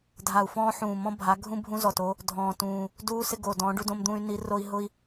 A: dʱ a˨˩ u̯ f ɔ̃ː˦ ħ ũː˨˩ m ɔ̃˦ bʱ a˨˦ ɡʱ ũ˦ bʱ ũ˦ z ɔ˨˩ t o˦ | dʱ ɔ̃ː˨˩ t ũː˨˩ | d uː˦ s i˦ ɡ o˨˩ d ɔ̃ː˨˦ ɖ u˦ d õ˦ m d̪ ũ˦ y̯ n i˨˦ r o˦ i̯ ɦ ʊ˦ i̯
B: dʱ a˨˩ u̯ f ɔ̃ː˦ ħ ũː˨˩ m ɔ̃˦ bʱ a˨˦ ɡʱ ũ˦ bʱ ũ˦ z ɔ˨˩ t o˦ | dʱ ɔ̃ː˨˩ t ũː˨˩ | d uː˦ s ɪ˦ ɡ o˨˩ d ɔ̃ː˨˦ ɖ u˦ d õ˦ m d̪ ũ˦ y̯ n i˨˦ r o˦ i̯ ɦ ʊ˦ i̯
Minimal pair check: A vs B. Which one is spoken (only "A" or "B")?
B